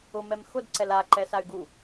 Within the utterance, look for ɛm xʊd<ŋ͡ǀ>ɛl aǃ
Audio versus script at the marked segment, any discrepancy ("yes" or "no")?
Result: yes